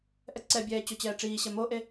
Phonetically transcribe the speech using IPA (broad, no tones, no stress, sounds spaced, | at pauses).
ʔ ɛ ǀ ɛ bʲ ɛː t͡ɕ o t͡ɕ ɛː ʈ͡ʂ iː ɕ ɛ m o ʔ e